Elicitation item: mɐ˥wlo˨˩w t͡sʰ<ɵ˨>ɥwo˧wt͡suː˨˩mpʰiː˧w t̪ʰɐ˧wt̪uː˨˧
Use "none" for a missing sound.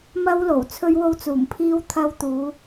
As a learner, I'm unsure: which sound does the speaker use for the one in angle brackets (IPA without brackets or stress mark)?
ɵ˧